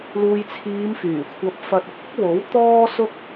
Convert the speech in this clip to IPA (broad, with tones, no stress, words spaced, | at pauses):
luː˨jt͡sʰiː˨˧mfyː˨˩kʷʰɐ˨˥p̚ fɐ˧t̚ʊ˨k̚ ʊ˥k̚wo˨˥w t̪ɔː˥sʊ˥k̚